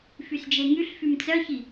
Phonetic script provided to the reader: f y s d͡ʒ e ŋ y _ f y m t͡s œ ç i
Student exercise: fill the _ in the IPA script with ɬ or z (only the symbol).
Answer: ɬ